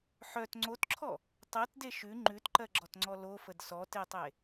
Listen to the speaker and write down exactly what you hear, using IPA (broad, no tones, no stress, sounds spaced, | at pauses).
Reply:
ħ œ t ŋ͡ǀ o t ǁʰ ɔ | tˤ ɜ t d e ʃ ʉ ŋ͡ǃ ʉ t ǃ ɜ ɡ͡ǁ ɔ t ŋ͡ǀ ɔ l o f ə d s ɔ t e tˤ e